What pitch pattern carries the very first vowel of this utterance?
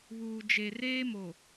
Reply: low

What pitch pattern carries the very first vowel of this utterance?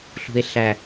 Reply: low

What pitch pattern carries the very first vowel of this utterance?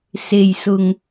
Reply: low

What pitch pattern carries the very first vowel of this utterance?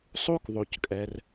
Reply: high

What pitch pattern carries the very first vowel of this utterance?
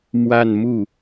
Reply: falling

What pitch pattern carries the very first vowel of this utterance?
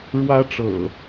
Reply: high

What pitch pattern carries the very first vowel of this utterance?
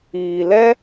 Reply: low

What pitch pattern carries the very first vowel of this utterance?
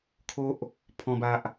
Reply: high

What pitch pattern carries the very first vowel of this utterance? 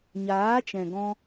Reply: rising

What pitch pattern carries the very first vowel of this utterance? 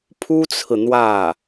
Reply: high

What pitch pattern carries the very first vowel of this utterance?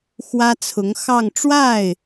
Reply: high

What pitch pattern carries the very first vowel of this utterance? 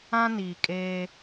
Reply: high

